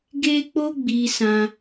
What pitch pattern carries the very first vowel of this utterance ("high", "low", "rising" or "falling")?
high